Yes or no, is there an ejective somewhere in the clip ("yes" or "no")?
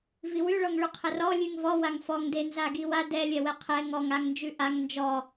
no